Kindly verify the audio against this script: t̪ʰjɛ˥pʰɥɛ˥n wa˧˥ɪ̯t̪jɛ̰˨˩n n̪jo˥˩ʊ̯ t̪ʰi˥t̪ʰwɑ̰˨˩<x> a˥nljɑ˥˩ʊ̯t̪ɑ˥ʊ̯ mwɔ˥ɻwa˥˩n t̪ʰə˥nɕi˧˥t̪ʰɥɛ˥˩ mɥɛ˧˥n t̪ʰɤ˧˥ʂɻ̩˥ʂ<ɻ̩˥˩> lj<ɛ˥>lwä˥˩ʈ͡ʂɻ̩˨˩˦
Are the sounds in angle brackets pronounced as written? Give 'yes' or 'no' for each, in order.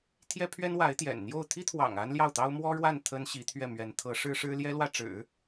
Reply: no, no, yes

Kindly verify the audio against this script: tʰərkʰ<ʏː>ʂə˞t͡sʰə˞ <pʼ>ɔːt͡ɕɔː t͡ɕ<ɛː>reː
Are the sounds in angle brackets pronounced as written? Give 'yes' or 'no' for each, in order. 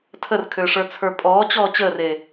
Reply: yes, yes, no

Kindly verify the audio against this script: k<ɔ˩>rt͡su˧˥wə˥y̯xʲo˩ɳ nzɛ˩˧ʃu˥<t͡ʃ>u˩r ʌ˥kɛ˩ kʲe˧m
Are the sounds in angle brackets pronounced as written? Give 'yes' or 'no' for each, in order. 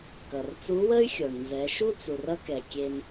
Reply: no, no

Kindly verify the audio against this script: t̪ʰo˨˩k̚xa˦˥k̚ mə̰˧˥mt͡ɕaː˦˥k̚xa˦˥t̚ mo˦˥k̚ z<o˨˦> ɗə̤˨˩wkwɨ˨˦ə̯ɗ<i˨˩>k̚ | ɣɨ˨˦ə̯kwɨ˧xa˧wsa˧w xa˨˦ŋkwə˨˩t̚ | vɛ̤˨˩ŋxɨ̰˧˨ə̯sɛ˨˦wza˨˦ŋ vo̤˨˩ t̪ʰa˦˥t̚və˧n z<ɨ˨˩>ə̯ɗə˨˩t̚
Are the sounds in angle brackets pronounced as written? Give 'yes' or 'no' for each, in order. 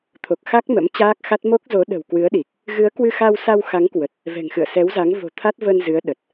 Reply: yes, yes, no

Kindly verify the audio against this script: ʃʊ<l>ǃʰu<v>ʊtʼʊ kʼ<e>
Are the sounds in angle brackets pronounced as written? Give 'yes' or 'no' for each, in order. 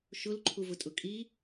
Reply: yes, yes, no

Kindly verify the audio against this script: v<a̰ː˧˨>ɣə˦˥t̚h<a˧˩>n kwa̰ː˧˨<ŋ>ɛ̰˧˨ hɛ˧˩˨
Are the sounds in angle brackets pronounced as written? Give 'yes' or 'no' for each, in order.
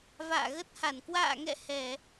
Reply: yes, yes, yes

